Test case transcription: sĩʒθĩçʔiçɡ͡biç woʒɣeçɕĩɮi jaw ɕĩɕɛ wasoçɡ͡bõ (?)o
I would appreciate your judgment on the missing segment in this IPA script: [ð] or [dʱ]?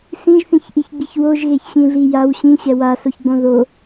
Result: ð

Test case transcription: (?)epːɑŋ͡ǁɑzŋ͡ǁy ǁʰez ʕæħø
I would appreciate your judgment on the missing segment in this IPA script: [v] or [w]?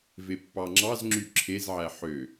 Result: v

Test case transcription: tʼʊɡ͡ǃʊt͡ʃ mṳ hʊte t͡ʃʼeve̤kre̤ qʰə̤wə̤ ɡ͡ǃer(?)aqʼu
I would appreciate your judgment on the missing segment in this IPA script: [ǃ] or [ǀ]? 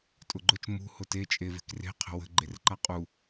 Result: ǃ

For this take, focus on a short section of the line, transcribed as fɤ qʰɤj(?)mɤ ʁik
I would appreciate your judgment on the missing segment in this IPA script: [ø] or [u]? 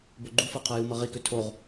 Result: u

